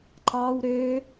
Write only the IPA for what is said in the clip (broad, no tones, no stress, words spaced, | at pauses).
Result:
ǃɑw ɾø